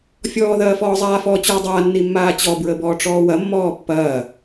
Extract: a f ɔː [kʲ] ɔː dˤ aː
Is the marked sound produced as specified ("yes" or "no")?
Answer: no